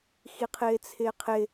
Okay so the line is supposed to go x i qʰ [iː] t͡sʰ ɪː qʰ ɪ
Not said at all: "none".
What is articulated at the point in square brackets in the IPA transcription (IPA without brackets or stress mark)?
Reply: ɪː